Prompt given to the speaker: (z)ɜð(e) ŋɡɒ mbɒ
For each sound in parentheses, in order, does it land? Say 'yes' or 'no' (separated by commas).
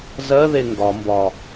yes, yes